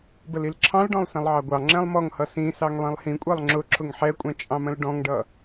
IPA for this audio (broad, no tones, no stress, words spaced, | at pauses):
bəlilǁʰɑ̃lɖɔ̃lˠ sɛ̃lˠʕɑɡʷɑŋ͡ǁɛ̃lˠ mɔŋhʌ sĩsɑŋ lˠĩlˠhĩkʷʼɛlˠ ŋ͡ǁʊ ǁʰʊŋħɛkʷʼɛ̃ t͡ʃʼɑ̃mə̃lɖɔ̃ŋɖʌ